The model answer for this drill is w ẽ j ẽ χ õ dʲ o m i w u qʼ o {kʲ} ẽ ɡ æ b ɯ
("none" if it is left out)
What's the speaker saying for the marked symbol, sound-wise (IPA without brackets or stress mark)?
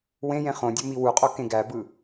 k